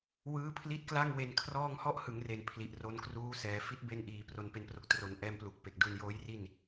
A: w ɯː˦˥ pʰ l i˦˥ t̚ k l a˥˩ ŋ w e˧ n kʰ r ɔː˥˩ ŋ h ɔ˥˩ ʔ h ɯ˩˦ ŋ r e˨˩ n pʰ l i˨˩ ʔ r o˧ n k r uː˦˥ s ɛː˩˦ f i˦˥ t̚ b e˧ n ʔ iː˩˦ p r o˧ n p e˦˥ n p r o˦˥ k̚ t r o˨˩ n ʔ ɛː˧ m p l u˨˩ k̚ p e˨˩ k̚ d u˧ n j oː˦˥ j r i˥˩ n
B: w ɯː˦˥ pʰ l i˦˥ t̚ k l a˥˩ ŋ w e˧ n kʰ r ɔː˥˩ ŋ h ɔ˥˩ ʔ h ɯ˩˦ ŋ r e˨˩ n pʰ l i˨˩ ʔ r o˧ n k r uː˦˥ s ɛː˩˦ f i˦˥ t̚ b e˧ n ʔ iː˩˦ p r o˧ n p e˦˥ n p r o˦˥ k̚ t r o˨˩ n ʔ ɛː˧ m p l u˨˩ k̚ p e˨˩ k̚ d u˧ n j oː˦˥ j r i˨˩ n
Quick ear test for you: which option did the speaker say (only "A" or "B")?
A